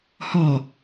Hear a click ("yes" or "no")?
no